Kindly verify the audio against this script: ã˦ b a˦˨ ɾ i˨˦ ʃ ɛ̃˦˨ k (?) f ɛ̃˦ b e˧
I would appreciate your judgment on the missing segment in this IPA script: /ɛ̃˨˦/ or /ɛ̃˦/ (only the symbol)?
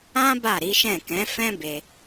ɛ̃˨˦